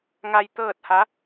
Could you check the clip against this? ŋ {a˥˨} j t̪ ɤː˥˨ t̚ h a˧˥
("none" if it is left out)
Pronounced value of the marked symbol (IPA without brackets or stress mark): a˧